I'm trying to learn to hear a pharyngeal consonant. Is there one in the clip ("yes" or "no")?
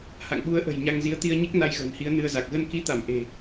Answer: no